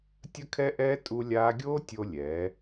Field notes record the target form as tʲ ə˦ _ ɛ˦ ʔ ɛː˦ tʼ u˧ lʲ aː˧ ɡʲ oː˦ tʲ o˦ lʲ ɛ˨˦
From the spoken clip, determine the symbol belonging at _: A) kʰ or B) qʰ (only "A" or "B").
A